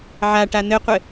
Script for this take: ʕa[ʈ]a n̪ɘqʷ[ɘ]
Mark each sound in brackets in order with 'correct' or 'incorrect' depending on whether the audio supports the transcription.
correct, correct

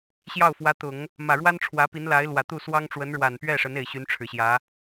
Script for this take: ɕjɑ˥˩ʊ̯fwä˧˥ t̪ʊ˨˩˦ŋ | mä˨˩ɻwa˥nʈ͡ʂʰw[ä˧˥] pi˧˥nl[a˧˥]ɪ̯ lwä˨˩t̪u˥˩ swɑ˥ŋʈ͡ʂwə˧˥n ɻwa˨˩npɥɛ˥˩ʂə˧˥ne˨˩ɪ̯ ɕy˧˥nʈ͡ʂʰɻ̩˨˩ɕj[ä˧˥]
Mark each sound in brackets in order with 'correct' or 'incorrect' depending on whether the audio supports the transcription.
correct, correct, correct

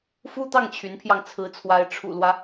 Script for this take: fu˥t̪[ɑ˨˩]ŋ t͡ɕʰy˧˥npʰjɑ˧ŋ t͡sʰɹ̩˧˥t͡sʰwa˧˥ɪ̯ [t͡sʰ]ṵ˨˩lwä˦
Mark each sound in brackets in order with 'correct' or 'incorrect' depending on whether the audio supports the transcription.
incorrect, incorrect

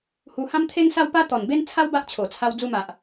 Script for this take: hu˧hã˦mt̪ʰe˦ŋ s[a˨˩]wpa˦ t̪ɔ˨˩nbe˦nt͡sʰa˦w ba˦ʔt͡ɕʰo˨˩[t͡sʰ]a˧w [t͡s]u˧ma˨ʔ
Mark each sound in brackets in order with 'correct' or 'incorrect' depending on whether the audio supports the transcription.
incorrect, correct, incorrect

